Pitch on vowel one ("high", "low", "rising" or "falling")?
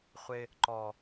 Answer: high